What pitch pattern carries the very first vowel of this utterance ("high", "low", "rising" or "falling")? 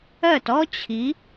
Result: falling